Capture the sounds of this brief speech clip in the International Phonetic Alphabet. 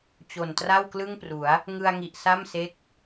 t͡ɕo˨˩ntra˥˩wklɯ˥˩ŋpru˩˦a̯ | ŋɯ˧a̯ŋi˨˩ʔ sa˥˩mse˦˥k̚

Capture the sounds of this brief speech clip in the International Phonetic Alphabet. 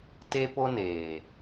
te˦po˦neː˨

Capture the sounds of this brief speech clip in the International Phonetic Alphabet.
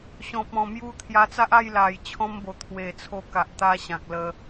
ɕɔ̃˨p̚ɔ̃˨˩mju˧ t̪ʰja˧t͡sa˦ʔa˥˧j la˨˩j t͡ɕʰɔ̃˧mbo˨˩ t̪ʰwe˨˩t͡sʰo˧ka˨ʔ t̪a˧ɕã˨k̚ lə˧

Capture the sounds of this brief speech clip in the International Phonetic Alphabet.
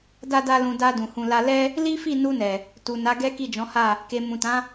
da˦da˦lũ˧ da˧ dũ˨hũ˧la˦ lɛ˦ | li˦fi˦˨ nu˧nɛ˨ | tu˨na˨˦ɡɛ˦ ki˦˨d͡ʒɔ̃˨˦ha˦˨ | ke˨ mũ˨tã˨˦

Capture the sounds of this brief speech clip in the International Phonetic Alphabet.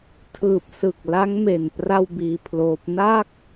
tʰɯː˨˩p̚sɯ˨˩k̚ la˦˥ŋme˨˩n pra˥˩wbiː˧pʰloː˦˥p̚ na˥˩k̚

